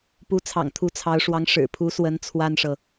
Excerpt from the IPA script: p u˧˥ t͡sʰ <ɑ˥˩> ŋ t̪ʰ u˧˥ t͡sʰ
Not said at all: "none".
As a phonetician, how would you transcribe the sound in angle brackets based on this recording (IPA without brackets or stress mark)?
ɑ̰˨˩